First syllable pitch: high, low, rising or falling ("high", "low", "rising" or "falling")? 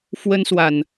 high